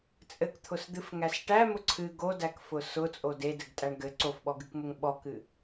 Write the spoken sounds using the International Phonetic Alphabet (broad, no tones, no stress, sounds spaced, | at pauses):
t͡sʼ ɘ k t̪ʰ ʊ s d̪ ɨ f ŋ æ s ʈ æ m ʊ ǀʰ ɨ ɡ o d æ k f ʊ s ʊ t͡sʼ o d e d ɘ ɡ tʼ æ ɳ ɡ ɘ ǀ o f ɓ ɔ ɡ ɨ k m ʊ ŋ ɓ ɔ k ɨ